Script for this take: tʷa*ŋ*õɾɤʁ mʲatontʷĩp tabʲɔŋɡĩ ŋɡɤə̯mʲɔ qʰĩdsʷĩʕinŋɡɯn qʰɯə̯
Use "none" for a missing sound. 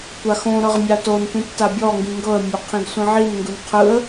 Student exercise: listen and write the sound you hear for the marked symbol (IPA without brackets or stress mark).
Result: x